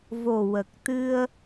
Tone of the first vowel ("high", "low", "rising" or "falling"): low